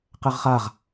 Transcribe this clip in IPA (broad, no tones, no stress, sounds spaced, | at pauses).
q ɛ ʁ χ a ʁ